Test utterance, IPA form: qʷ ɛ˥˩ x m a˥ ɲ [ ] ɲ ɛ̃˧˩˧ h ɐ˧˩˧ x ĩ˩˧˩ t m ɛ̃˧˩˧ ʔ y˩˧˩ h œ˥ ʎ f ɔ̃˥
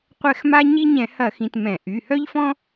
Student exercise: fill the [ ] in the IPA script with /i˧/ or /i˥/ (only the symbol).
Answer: i˥